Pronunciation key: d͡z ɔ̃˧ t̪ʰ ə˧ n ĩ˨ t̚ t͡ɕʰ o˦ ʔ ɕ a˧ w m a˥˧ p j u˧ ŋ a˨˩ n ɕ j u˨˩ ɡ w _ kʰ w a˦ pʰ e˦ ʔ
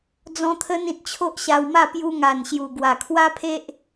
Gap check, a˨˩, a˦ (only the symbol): a˨˩